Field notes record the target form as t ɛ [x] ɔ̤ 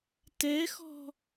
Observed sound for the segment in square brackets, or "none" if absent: x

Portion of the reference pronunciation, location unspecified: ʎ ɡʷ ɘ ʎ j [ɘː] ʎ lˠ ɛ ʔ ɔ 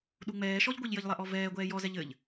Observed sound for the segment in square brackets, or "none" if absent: ɘ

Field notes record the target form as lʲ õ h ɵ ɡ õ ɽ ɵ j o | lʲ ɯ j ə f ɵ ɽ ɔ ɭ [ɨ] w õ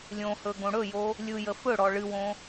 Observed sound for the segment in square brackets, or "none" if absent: ɨ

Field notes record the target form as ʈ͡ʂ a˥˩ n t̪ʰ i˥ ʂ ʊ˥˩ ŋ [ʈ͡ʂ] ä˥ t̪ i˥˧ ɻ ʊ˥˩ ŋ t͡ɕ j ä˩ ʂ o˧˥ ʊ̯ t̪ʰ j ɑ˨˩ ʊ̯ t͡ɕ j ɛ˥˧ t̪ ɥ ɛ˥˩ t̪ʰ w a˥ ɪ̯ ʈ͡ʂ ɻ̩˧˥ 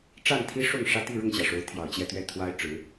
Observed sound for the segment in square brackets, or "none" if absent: ʂ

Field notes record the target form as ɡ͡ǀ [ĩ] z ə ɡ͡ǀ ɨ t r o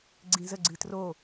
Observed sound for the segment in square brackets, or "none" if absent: ĩ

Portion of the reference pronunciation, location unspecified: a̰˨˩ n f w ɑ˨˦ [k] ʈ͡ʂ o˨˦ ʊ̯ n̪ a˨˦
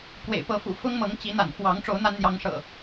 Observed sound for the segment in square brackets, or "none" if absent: ŋ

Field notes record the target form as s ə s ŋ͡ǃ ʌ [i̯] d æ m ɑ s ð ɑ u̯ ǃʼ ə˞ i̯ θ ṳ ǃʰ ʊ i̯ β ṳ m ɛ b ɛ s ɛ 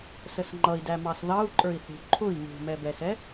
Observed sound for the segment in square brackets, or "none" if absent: i̯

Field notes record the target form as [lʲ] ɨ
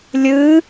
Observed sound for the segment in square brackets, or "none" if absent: lʲ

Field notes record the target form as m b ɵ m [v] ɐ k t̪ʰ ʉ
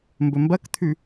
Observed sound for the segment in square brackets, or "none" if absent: b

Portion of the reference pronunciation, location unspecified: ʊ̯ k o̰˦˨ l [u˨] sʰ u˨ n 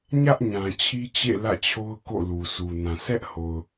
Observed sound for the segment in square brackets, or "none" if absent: u˨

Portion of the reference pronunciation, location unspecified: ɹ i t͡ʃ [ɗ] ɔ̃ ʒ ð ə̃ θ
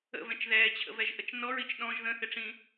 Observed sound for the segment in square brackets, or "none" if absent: ɗ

